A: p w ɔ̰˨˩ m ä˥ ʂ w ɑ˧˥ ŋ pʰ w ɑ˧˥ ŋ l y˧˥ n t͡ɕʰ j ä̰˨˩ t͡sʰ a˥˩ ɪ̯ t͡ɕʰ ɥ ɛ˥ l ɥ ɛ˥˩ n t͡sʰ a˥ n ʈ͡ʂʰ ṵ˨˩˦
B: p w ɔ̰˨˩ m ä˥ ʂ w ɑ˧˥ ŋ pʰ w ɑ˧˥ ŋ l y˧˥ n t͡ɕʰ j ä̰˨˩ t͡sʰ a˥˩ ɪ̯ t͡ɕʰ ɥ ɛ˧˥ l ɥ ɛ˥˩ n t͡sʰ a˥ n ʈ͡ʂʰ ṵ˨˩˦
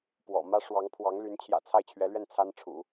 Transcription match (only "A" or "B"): B